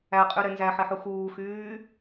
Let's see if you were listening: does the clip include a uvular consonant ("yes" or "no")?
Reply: yes